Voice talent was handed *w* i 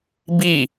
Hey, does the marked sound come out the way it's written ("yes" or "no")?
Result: no